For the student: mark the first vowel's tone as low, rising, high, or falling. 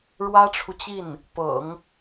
high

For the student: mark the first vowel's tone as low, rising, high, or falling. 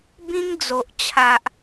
high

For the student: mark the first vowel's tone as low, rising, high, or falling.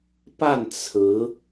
falling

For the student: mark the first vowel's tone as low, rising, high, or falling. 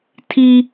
high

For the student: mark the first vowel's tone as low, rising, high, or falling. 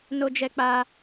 high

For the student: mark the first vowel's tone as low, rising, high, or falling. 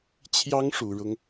high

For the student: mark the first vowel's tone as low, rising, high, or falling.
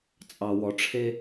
low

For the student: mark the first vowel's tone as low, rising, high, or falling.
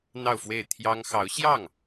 falling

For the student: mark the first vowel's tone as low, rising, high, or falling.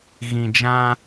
low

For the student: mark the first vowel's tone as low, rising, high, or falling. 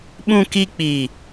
low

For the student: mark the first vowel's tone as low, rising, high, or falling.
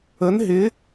rising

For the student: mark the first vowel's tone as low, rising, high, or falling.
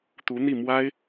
rising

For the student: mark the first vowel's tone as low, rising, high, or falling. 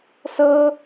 high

